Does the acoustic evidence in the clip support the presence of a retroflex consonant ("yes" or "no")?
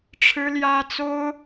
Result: yes